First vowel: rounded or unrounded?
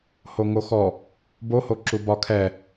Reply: rounded